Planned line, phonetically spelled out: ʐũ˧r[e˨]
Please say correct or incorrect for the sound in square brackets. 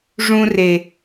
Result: correct